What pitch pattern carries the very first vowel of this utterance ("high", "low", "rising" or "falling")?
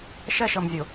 falling